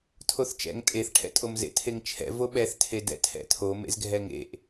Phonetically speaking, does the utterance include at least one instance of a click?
no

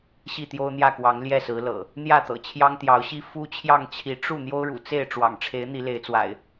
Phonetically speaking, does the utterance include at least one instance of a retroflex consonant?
yes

